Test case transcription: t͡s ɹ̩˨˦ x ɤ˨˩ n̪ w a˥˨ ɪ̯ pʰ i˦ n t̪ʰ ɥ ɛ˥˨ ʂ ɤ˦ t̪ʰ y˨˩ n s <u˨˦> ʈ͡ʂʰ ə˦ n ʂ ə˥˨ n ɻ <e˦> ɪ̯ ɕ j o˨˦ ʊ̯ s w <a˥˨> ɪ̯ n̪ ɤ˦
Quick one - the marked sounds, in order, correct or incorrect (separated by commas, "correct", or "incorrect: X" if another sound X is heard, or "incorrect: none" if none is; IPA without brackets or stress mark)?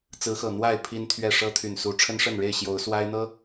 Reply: correct, incorrect: e˥˨, incorrect: a˦